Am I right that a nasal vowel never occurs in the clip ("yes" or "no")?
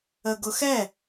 yes